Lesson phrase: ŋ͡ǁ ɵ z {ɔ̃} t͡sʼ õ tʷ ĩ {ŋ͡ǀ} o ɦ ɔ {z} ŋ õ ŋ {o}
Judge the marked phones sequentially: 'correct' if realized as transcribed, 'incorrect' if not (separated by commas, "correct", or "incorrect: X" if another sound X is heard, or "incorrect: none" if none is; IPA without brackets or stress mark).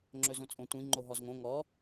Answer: incorrect: õ, incorrect: ŋ͡ǃ, correct, incorrect: ɔ